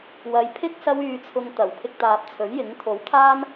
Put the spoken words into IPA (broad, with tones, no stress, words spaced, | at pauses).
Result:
wɐ˨jpʰɪ˥k̚ sɐ˥wyː˧t͡sʰʊ˧ŋt̪ɐ˨˩w pʰɪ˧k̚t̪aː˨p̚t͡sʰɵ˨˥ɥjɪ˨˥ŋ t̪ʰo˨˥wt̪ʰaː˥n